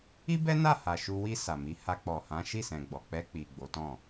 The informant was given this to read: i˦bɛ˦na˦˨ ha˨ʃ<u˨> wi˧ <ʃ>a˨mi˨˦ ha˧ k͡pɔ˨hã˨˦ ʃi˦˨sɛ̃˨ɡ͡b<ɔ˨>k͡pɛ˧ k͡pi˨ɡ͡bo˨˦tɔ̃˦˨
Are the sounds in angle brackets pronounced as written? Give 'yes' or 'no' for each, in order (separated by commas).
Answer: no, no, yes